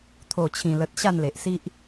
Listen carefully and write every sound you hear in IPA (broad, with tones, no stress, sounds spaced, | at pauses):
t̪ʰ o˨˩ t͡ɕʰ ĩ˨˩ l ə˨ t̚ ɕ a˥˧ n l e˨ ʔ s i˦ ʔ